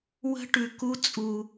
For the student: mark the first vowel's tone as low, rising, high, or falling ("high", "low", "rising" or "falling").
high